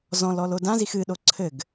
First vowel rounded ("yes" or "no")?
yes